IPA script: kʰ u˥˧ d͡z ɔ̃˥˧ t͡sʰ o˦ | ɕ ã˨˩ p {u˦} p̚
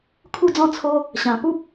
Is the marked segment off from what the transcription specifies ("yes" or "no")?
no